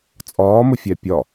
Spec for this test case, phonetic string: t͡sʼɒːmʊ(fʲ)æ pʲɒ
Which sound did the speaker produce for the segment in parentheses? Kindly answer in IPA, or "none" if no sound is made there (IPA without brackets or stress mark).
fʲ